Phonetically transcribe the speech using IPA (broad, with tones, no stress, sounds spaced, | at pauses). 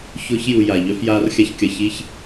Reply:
ç ʊː˧ ç j u˨ j a˨ ʎ œ˧ f j aː˧ r xʲ a˧ ç kʲ ɐ˨ ç i˧ ç